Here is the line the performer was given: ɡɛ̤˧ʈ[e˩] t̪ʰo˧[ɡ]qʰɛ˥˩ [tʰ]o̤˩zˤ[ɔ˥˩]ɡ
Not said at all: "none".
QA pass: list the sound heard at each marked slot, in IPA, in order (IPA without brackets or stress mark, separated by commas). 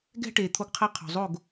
e˩, ɡ, qʰ, o˥˩